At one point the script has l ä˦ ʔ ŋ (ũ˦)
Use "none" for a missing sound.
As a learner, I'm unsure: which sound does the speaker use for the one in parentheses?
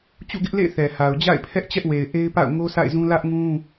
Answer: ũ˦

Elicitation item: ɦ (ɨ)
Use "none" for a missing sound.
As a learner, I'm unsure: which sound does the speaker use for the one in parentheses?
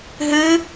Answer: ɨ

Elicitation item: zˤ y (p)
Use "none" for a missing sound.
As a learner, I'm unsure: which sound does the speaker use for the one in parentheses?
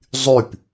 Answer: p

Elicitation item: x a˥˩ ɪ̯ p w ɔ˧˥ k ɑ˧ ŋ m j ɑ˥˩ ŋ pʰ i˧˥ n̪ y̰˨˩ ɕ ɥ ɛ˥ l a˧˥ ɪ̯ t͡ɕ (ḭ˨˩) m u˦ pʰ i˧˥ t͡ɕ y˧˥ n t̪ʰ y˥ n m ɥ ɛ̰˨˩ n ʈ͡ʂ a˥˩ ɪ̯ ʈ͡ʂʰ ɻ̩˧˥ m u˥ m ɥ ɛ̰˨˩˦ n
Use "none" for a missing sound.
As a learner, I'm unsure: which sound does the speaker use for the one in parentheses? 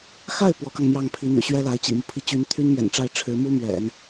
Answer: ḭ˨˩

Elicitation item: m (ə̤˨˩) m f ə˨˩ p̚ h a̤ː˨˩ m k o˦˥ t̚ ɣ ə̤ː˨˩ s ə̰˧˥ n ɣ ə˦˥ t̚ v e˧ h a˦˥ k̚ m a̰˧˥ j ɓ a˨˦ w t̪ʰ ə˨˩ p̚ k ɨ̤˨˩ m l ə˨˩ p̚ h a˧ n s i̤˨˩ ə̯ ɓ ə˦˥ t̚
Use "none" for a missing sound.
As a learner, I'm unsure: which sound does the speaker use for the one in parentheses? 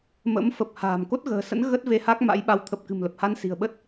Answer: ə̰˧˥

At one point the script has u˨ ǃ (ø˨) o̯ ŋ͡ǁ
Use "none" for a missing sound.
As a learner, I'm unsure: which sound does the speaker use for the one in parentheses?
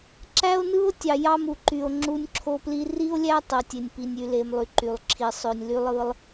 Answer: y˨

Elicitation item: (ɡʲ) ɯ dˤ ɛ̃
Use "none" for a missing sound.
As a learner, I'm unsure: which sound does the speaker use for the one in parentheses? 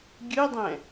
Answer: ɡʲ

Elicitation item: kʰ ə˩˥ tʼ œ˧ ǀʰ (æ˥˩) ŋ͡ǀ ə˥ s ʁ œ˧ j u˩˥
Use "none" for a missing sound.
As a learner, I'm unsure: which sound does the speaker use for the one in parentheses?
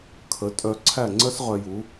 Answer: æ˥˩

